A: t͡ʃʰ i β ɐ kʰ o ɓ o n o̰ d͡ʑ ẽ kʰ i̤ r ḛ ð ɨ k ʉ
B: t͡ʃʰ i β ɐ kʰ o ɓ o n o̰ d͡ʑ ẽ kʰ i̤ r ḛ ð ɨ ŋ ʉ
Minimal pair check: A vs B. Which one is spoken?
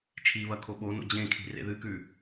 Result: A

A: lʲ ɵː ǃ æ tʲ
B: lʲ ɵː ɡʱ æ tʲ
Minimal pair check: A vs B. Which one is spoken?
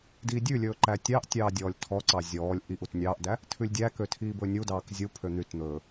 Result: A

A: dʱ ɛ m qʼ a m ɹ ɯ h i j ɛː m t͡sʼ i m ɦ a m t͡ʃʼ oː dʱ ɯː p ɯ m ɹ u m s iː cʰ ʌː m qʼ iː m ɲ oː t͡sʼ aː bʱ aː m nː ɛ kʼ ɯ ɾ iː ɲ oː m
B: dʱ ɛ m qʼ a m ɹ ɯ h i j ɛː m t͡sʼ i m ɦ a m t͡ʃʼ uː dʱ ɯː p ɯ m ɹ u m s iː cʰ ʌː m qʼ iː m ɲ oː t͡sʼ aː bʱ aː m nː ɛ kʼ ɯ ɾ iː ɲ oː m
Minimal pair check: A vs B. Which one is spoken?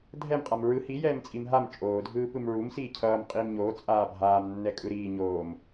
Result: A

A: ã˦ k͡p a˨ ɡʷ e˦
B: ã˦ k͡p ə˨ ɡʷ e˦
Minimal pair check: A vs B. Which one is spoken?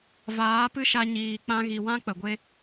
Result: B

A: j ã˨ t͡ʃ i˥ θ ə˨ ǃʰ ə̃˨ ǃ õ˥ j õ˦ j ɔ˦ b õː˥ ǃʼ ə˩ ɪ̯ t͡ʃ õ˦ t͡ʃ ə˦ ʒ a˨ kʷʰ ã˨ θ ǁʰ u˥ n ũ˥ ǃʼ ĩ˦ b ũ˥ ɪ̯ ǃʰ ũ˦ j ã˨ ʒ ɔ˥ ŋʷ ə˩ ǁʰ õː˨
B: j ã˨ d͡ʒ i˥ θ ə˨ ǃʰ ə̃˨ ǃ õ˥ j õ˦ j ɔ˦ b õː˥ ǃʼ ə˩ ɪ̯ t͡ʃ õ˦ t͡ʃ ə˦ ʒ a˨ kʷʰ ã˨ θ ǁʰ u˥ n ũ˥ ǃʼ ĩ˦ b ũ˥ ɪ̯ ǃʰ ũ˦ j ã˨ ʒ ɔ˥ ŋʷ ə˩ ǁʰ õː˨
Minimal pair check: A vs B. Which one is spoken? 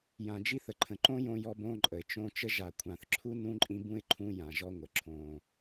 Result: B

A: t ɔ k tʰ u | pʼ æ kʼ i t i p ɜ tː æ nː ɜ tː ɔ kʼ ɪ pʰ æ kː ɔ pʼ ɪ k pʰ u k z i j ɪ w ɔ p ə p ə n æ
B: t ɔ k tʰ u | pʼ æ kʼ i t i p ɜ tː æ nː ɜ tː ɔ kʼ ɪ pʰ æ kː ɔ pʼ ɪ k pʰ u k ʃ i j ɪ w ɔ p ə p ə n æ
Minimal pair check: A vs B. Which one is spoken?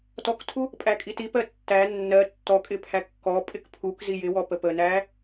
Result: A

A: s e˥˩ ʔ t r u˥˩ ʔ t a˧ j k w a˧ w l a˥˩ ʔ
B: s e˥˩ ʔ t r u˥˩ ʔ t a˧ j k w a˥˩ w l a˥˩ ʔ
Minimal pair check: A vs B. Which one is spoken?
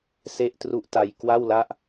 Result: B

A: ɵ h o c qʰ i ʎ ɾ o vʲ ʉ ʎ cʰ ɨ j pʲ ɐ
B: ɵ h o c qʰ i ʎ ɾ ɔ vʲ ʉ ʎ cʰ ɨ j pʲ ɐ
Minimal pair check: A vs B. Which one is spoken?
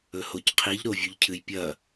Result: A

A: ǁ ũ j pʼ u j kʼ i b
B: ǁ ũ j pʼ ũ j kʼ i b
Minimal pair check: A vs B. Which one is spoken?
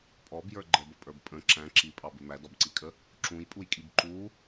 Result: A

